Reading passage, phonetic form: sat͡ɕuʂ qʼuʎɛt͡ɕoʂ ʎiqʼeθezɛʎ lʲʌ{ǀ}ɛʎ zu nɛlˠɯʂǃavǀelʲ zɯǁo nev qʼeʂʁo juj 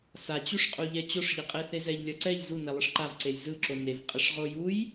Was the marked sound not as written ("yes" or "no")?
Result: no